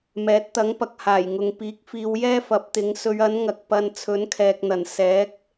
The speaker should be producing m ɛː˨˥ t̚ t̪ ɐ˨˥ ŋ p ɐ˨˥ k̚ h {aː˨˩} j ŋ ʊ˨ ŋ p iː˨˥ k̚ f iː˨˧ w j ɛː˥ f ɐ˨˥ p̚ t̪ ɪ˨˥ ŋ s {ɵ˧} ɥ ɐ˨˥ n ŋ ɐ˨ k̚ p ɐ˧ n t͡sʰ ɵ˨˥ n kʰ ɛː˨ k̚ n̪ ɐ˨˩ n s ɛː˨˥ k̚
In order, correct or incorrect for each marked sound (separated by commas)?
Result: correct, incorrect